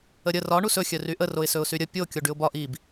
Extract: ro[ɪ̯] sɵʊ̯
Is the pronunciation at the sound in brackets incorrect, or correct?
correct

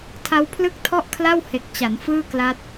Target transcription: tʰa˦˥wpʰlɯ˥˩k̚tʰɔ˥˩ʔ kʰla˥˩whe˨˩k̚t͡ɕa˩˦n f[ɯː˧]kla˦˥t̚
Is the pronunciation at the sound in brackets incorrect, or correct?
incorrect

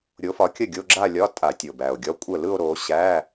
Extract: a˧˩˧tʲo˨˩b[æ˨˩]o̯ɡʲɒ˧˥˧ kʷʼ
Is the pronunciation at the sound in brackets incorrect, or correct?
correct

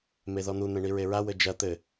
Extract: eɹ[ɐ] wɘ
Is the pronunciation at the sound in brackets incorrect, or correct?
incorrect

